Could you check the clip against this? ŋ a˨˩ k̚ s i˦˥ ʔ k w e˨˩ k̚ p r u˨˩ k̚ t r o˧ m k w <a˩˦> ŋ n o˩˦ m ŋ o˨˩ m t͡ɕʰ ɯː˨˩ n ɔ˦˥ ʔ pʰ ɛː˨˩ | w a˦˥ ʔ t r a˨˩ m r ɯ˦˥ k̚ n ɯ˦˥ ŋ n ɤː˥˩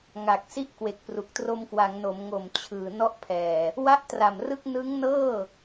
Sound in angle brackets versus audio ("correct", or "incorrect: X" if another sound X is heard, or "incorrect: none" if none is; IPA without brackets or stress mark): correct